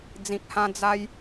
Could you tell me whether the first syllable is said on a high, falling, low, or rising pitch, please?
low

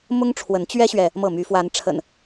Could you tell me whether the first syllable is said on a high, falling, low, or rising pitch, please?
high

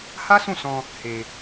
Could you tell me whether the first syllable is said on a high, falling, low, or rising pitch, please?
high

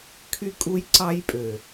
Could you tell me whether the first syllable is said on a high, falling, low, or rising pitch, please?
high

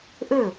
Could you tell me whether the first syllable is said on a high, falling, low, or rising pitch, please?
falling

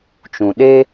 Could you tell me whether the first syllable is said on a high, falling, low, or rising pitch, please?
low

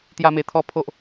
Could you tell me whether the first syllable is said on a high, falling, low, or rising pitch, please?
high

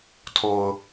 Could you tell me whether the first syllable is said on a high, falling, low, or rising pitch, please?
low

